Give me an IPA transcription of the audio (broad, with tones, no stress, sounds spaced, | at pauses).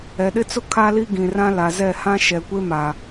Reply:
ɛ˨ ɗ ɪ˦ t͡s ʊ˦ kʰ a˦ l i˦ ɡ ĩ˨ r ã˦ l a˨ z ɛ˦˨ h ã˦ ʃ ɛ˨ kʷ e˦ m a˨